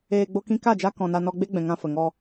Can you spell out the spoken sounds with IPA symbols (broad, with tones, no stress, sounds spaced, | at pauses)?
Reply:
eː˧ ɡ͡b o˧ k ĩ˧ k a˦˨ d͡ʒ a˧ k ɔ̃˨ n a˧ n ɔ˧ ɡ͡b e˦ ɡ͡b ɛ̃˨ ŋ ã˧ f ə˨ ŋ ɔ˧